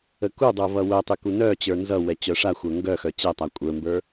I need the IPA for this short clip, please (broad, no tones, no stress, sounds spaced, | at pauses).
ə k u dˤ ə˞ v ʌ w œ tˤ y k u n œ t͡ɕ ə˞ n z ʌ w ɛ t͡ɕ œ ʂ a xʷ ə˞ ŋ ɡ œ x œ t͡ɕ ɛ tˤ a kʷʼ ə˞ m b ə˞